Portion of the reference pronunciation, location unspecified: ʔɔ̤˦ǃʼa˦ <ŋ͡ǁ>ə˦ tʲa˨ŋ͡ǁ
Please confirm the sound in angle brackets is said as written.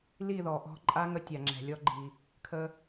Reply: no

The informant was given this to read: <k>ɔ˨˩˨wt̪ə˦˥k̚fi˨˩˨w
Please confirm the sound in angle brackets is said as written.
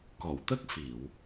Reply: yes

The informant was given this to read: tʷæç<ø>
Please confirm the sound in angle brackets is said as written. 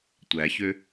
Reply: yes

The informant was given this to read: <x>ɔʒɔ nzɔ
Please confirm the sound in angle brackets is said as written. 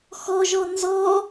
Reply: yes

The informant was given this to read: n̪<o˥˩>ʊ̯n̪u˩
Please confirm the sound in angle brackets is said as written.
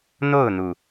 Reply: yes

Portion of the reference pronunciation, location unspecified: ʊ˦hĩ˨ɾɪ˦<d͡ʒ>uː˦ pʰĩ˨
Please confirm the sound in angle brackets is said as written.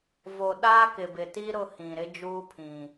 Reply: yes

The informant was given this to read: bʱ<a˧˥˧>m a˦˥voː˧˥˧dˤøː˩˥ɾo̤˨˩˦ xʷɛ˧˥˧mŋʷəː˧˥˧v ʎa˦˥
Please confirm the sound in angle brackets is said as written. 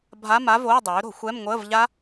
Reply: yes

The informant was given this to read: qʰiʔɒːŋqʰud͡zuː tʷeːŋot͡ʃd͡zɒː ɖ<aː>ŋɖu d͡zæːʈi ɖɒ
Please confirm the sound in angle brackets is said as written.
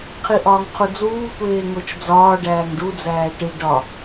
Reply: no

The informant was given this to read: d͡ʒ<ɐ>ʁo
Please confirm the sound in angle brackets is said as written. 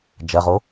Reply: yes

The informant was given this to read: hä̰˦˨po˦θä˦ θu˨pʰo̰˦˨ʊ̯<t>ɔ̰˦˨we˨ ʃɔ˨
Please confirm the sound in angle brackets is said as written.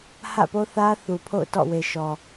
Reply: yes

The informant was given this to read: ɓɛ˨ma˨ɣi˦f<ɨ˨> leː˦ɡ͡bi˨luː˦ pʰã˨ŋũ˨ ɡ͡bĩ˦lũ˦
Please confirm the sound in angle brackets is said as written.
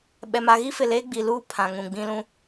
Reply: no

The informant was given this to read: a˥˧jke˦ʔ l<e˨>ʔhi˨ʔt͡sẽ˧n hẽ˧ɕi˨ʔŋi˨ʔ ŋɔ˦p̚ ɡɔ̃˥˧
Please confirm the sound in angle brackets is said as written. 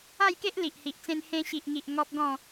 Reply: no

